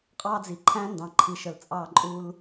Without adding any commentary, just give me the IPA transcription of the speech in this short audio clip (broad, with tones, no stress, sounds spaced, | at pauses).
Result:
qʼ ɑ˦ d͡z i˨ ǃʰ æ̃˦ n d ɑ̃˨ ǃʰ i˨ ʃ ə˨ l t͡sʼ ɑ˦˨ ǃʼ u˦ l